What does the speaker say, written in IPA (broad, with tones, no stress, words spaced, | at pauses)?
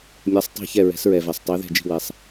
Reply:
mʲɛ˩˧sˤtˤi̤˧˩ çɛ˧˩ɹɛ̤˩˧sɹɛ˩vɛ˩sˤ tˤe˩˧ðɛ̤˧˩d͡ʒi̤˧˩wɛ˩sˤ